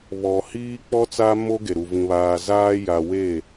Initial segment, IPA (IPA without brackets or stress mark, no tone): β